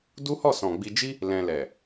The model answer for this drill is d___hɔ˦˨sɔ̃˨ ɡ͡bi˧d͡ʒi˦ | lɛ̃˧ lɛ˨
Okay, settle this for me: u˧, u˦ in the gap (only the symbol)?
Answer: u˦